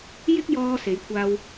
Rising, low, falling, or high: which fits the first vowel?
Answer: high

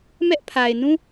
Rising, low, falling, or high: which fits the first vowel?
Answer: high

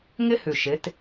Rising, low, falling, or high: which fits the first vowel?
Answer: high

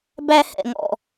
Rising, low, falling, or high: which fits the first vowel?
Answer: high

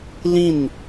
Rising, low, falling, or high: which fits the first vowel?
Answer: falling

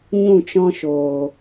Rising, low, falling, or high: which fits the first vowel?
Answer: falling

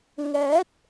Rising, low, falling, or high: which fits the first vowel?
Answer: rising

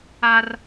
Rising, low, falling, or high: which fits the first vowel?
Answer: high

